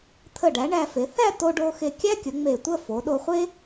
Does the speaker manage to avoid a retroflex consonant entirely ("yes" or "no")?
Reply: no